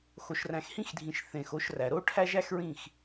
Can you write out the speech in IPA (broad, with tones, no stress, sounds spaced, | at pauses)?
x o˨ ʃ r æ̃˨ x h ĩ˦ x dʱ ĩ˨ ʃ θ ẽ˨ x o˧ ʃ r æ˨ ɾ o˦ ʈʰ æ˦ ʒ æ˦ x ɹ ĩ˦˨ x